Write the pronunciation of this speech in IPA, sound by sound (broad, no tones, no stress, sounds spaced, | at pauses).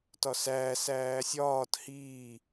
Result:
t ɒ s æː s æː sʲ ɒː t h iː